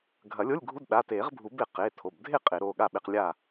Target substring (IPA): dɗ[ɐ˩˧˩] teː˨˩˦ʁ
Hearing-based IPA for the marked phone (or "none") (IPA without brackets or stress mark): a˩˧˩